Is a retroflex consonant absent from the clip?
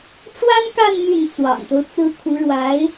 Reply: no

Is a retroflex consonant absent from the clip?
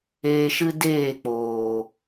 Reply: yes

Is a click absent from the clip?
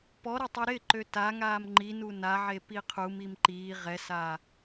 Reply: no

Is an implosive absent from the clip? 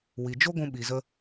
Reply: no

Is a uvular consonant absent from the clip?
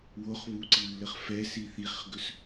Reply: no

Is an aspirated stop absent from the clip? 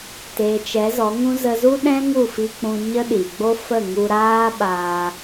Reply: yes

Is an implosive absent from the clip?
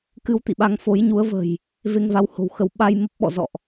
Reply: no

